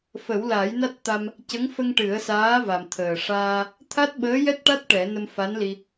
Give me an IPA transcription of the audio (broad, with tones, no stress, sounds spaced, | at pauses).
f ə˨˩˦ w l a˨˩˦ j n a˦˥ t̚ t̪ a˧ m | c ə˧˥ ŋ f ə˧ ŋ ʈ ɨ˨˩˦ ə̯ s aː˧˥ v a˨˩ m t̪ʰ əː˨˩ ʂ aː˧ | t̪ʰ a˦˥ t̚ ɓ əː˧˥ j ɛ˦˥ t̚ ʈ a˦˥ t̚ ʈ ɛ˨˩˦ n ə˧ m f a˧˥ n l i˧